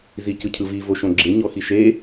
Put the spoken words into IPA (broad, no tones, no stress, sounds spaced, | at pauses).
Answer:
z i c ɯ cʰ ɯ v i v o ʃ õ ɡ͡ǁ e ɲ ɔ x i ʃ e